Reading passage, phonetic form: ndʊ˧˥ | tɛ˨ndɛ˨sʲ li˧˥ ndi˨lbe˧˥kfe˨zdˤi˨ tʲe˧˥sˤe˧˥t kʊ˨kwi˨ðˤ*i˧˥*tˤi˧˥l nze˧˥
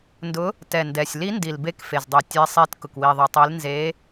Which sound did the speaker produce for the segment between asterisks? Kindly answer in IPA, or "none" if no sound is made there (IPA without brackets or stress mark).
i˨